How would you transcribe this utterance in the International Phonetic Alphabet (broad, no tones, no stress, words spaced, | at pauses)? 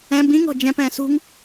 ɛ̃ bĩŋ ɔ̤d͡ʒɛ̃p ɛ̃ːsṳŋ